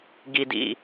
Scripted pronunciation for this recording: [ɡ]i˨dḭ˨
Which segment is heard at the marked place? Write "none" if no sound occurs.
ɡ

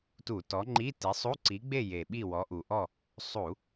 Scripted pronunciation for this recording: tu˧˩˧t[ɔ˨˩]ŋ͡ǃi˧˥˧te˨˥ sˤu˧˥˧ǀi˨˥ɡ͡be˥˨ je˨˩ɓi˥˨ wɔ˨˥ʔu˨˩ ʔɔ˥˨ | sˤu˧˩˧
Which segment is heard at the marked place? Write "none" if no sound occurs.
ɔ˨˥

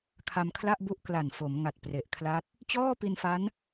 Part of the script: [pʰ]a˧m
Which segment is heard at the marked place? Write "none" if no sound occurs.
kʰ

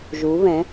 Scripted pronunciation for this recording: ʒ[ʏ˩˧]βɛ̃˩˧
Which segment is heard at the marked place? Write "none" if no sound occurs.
u˩˧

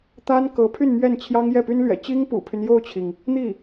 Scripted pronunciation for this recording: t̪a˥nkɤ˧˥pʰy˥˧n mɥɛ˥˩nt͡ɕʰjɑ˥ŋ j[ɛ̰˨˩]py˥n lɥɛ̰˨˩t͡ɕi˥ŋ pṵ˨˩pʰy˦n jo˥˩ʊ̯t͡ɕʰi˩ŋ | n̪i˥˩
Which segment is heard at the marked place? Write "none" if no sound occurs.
ɛ˥˩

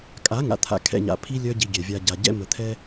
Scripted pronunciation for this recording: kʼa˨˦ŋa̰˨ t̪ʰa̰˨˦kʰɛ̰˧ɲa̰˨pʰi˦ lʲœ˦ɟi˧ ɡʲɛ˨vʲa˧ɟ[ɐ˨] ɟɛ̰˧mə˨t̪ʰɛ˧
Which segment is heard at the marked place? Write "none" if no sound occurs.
a˨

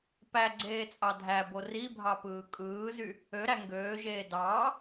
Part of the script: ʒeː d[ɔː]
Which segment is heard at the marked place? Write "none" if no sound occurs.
ɑː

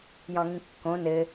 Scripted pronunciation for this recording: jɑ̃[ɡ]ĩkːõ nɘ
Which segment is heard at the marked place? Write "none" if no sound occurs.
ŋ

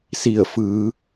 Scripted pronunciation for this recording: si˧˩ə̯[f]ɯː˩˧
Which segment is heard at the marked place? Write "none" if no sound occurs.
f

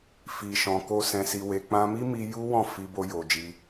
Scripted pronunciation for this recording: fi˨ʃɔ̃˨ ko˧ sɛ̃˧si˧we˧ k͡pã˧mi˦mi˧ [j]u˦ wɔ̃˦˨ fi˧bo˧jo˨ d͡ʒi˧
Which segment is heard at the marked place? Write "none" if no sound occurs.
j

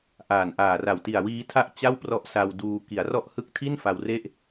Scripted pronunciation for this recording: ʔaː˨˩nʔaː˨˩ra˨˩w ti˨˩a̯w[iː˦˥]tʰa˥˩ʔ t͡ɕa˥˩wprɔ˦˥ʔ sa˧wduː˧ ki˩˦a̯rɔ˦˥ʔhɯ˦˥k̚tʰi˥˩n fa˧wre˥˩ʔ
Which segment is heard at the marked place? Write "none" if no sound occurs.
iː˦˥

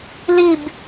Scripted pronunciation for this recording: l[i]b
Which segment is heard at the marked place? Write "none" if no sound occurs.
i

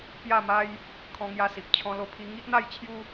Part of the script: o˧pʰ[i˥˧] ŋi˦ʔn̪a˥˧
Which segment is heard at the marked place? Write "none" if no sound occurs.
i˧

